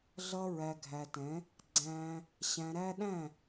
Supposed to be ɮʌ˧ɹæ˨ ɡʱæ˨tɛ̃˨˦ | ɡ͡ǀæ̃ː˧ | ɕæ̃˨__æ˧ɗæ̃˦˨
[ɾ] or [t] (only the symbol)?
ɾ